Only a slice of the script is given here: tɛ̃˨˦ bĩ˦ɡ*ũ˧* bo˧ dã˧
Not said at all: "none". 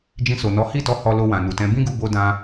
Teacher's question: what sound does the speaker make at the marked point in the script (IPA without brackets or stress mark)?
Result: u˧